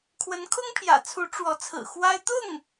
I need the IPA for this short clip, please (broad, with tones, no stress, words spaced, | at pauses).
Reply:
kʰwə˧˥nkʰʊ˥ŋpʰjä̰˨˩t͡sʰu˧˥ ʈ͡ʂwɔ˧˥t͡sʰɹ̩˨˩xwa˥ɪ̯ t̪ʊ˥˩ŋ